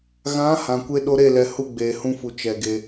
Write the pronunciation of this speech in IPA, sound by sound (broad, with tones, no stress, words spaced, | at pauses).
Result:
ɣã˨˦ hã˨kʷe˦ ɗo˧ɾe˦˨lɛ˨ hu˧ɡ͡beː˨hũ˧fu˨ t͡ʃɛ˨ɡe˧